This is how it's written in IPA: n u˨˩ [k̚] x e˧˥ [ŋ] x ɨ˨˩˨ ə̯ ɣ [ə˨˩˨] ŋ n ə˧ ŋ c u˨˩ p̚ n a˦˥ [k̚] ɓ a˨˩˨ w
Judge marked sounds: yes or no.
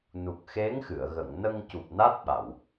yes, yes, yes, no

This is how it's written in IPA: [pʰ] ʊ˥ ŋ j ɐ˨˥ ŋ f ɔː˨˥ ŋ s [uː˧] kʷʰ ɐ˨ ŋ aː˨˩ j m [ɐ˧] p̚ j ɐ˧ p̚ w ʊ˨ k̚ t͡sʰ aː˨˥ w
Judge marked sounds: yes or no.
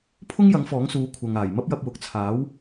yes, no, no

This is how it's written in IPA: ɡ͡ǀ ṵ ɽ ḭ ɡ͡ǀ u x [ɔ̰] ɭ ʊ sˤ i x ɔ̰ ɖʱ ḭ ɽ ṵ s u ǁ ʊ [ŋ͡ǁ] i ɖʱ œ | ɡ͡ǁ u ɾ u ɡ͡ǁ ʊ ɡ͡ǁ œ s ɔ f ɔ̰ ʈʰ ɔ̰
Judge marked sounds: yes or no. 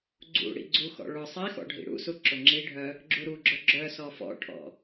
yes, yes

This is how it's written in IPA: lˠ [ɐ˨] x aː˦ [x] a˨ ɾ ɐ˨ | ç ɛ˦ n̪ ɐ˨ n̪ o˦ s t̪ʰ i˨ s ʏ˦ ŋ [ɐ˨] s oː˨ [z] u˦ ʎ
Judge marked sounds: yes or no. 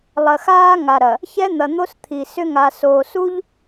yes, no, no, no

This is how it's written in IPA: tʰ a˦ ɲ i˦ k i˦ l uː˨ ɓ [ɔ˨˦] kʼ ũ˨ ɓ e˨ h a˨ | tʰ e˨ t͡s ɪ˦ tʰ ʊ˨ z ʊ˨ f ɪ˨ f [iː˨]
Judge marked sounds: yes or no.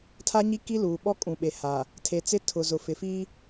no, no

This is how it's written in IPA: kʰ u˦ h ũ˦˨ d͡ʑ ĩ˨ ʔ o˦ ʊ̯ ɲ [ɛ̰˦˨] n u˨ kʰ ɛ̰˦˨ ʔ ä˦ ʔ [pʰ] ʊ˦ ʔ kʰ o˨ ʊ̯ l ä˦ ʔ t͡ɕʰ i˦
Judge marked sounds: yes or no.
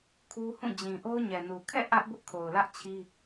no, no

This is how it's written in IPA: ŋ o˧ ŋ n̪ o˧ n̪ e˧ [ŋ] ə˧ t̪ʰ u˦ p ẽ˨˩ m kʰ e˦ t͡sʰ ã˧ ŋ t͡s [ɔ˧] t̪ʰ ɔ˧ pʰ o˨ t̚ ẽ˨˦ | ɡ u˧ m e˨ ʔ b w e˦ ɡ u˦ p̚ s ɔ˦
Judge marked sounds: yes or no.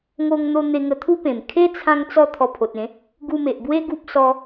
yes, yes

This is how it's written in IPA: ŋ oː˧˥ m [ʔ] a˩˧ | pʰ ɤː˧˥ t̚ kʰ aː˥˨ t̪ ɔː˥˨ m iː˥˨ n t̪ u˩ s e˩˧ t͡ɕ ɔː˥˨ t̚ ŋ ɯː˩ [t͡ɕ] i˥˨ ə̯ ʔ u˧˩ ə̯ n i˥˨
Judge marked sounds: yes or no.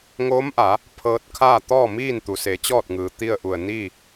yes, no

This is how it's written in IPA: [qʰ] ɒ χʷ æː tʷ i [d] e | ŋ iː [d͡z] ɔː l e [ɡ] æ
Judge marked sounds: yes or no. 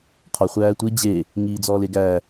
yes, no, yes, yes

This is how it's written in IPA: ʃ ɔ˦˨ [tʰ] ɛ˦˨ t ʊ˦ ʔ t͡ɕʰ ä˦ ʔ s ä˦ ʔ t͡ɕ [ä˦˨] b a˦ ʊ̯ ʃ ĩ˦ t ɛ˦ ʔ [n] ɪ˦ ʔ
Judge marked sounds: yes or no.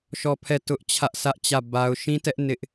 no, yes, yes

